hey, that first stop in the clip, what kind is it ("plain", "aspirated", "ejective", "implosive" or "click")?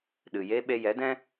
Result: implosive